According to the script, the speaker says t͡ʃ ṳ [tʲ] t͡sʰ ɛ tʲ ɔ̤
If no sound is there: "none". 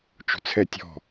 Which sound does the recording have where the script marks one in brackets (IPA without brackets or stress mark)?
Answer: none